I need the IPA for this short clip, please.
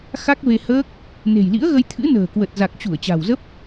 xa˦˥k̚ve˧həː˦˥k̚ | ne̤˨˩jlḭ˧˥ə̯ɣə˧j t̪ʰɨ̰˧˥nə̤ː˨˩kwə˨˩t̚ za˨˩k̚t͡ɕu˧˩ə̯ t͡ɕa̤˨˩wzə˦˥p̚

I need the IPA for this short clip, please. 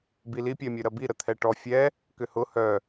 bili pʲɛmʲøɾɐbi ɾət̪ʰɛʈɔ fʲɛ | kʏhʊ hœ

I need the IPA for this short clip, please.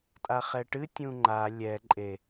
tʼaχɛʈɨ tʲũŋ͡ǃa lʲɛ ǃʼe

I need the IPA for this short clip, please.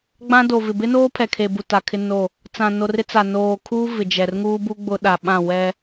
ɡ͡bã˦do˨vɪ˨ bɪ˦noː˦ pʰɛ˨kʰe˨bu˨ ta˨kʰɪ˦no˦˨ | t͡sã˨no˨rɪ˦t͡sa˨ noː˨kʰuː˦ vɪ˨d͡ʒɛ˨rŋuː˦bu˦ ɡ͡bʊ˦ɗa˨ɓã˦˨ wɛ˦

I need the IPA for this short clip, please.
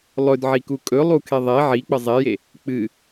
lˠɵdʕiku kʼɵlˠukʰe ðˤe ʕik͡pə zˤeje | k͡pɨ

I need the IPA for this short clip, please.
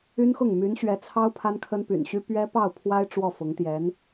y˥nxʊ˥˩ŋ my˧˥nɕɥɛ˧˥t͡sʰɑ˥ʊ̯ pʰa˥nkʰə˥n py̰˨˩nɕy˥ pɥɛ˥pɑ˥˩ʊ̯pʰwa˥ɪ̯ ʈ͡ʂwɔ˥˩fʊ˧˥ŋt̪jɛ˧˥n

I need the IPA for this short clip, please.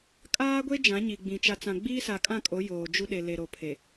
kʼaː˦ɡʷe˦ d͡ʒã˨˦ɲi˨ɡ͡bĩ˨ t͡ʃa˨t͡sã˨ ɡ͡biː˦sa˨ kʼã˦˨kʼo˨˦ joː˨d͡ʒu˦ ɗe˨le˨ɾo˨pʰe˨

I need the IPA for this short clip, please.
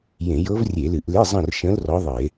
jẽ˧˩˧jɤ˧˥vrʲe˧˩˧lɨ˧˩˧ʔ le˧˥˧zˤə̃˦˨rʃə̃˧˥l rɔ˧˥ðˤɨ˧˩˧e̯

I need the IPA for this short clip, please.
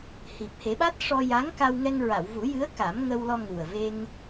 hi˨˩p̚he˨˩˦ɓa˦˥t̚ ʂɔ˧ja˧˥ŋka˧wŋɛ˧ŋ ɹa˨˩˨wvu˨˩˦jɨ˧˥ə̯ ka˨˩˦mŋə˧w lɔ˧ŋu˨˩ə̯ve˧ŋ

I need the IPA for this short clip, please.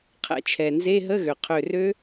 qʰɛ̰˧˩t͡ʃʰɛ˩ nze˧˥˧ɦə˧˥˧ɣø˩qʰø˧˩ rø˦˥

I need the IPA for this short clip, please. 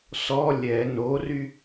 sɔ lʲɛ nory

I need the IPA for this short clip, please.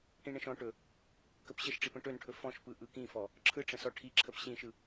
ʈĩɳə̃ʃɔ̃ʈɵ | kəpɕəʃʈ͡ʂip ə̃ʈɵnʈʰɵ fɔ̃ʃpɯ ʔɯkĩfɔ | ǁʰɯʈ͡ʂə̃ sɔʈʰiǁʰəp ɕĩʃɯ

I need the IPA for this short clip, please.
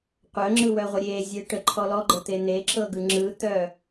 qʷœŋ͡ǁɯwœʁʷœ ɾʲe zʲeʈə ǃʰɔlɔɡ͡ǃɤt̪e n̪eǁɤɡɯ ŋ͡ǁɯt̪œ

